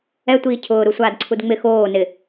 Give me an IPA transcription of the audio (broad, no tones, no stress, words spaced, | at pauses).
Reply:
ɛtʷiː cʰʊːɾusʷaːdǀʰud ŋ͡mɪ xoː nɪ